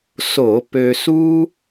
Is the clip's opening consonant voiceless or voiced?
voiceless